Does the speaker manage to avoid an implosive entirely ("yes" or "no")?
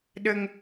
no